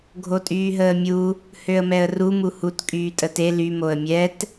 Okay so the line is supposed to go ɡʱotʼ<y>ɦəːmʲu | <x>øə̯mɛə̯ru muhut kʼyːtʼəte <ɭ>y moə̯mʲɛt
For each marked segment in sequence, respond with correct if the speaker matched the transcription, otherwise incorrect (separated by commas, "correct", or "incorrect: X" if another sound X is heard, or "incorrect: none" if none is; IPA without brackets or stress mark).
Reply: incorrect: yː, incorrect: h, incorrect: l